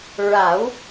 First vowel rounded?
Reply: no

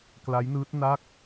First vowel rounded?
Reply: no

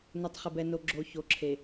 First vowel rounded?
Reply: yes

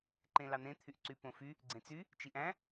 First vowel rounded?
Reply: no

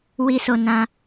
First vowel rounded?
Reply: no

